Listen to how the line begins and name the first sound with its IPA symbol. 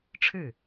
ʈ͡ʂʰ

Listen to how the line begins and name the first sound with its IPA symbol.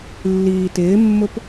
lː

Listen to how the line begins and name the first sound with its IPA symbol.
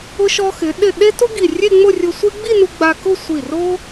ʊ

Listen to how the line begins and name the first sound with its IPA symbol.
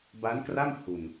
b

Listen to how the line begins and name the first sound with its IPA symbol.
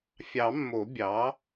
fʲ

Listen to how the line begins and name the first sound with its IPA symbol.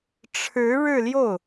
ʈ͡ʂʰ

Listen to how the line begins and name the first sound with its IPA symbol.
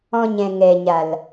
ɔ̃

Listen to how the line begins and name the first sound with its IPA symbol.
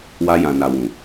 w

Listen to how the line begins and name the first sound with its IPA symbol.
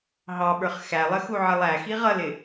ɦ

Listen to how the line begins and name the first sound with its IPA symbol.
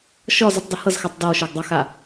ʃ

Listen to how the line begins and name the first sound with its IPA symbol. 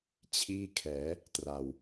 t͡ɕʰ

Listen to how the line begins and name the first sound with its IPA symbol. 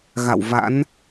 ɣ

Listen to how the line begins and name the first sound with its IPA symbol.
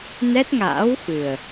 n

